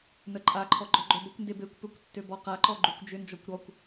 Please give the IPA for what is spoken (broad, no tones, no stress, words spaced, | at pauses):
nəǃʼaǃʰɔ ɡ͡ǃɔɡ͡ǃœbəkʷnde bekʷpøkʷ tːøbɔqaǃɔ ɡ͡ǃʉkʷd͡ʒʏnd͡ʒɔkʷ ɾɔkʷ